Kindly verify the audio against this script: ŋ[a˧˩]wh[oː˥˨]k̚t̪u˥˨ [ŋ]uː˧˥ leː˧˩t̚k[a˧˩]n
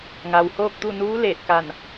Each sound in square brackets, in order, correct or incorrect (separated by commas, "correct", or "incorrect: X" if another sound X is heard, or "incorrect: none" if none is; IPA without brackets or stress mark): incorrect: a˩, correct, incorrect: n, correct